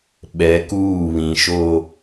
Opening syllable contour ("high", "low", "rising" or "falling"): rising